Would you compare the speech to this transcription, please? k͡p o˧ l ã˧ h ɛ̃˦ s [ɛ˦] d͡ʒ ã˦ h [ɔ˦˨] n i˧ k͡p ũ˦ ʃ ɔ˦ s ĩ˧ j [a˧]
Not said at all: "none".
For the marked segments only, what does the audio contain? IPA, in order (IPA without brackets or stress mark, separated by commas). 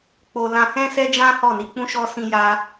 ɛ˦, ɔ˦˨, a˧